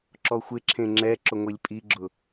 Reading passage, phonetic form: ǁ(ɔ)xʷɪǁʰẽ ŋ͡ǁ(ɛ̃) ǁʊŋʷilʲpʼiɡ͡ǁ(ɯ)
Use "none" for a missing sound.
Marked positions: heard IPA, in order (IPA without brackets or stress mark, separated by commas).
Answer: ɔ, ɛ, ʊ